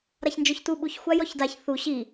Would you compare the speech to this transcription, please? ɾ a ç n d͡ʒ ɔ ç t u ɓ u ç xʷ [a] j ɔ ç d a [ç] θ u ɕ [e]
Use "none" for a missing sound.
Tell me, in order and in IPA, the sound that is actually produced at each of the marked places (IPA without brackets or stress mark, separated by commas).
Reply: a, ç, i